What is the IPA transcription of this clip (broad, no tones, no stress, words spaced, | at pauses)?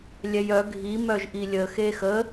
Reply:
lʲɛjœ ɡʱi mœʒʔilʲə xeːxə